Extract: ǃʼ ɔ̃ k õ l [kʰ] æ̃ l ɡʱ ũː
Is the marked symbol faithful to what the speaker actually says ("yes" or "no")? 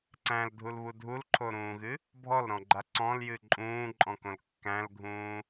no